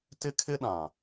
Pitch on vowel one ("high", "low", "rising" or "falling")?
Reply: high